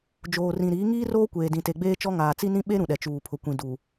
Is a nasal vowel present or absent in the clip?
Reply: present